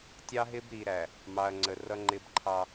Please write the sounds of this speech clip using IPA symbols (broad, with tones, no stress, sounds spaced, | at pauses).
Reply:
tʲ ɑ˦ ɦ ɪ˦ b ɾ i˨ ɾ æ˨ | m ɑ˨ ɐ̯ ŋ͡ǀ ə˨ r ʌ˦ ŋ͡ǃ ɪ˦ b ǃʰ ɑ˦